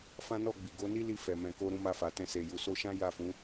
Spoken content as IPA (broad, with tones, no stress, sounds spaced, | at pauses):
f ã˦ n ɔ˦˨ ɡ͡b i˨ ɡ o˨˦ n i˦ l i˧ f ɛ˨ m ɛ̃˨ k o˧ ɾ ũ˧ m a˧ f a˨ t ɛ̃˧ s e˨ j u˨ s o˧ ʃ ã˦ j a˦˨ f ũ˨˦